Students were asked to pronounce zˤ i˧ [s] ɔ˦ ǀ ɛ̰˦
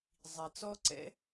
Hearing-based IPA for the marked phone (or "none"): t͡s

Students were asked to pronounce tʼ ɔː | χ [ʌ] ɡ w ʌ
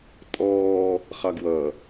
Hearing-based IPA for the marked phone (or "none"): ɑ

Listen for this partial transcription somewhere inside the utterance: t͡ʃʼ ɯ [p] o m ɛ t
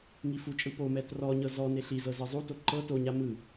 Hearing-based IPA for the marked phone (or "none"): p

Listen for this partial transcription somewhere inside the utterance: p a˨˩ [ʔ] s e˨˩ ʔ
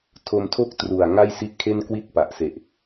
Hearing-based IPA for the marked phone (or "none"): ʔ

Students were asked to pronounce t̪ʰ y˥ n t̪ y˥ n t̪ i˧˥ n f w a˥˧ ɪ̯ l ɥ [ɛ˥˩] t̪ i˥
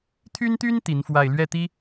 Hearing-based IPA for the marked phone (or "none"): ɛ˥˩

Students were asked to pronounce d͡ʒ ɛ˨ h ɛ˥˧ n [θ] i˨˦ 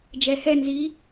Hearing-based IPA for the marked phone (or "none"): z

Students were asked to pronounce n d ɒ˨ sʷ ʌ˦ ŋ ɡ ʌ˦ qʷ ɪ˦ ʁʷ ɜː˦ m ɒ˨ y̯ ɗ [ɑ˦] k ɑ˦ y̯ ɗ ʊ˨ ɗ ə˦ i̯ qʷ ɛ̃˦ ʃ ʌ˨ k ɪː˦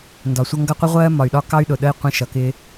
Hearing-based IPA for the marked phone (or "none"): ɒ˦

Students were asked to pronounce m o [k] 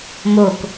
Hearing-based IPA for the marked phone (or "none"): k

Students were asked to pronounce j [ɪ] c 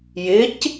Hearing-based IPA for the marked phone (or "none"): ɪ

